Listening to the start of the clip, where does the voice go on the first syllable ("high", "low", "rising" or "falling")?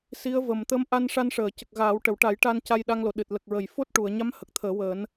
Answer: rising